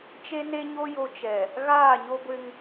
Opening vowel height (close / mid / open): mid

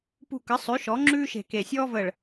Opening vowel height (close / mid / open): close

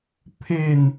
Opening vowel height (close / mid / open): mid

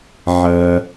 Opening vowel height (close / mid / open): open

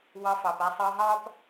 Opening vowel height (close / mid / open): open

